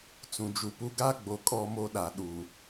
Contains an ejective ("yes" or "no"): yes